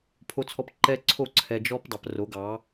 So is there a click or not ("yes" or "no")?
yes